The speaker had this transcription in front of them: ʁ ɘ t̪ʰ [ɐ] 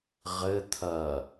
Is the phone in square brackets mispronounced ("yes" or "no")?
no